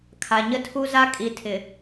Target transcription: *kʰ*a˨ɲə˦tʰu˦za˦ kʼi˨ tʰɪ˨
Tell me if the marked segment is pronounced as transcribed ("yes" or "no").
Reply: yes